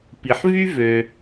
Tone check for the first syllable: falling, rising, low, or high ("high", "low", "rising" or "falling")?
low